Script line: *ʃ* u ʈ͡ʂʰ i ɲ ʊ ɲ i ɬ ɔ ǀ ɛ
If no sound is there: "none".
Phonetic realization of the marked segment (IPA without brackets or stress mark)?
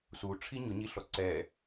s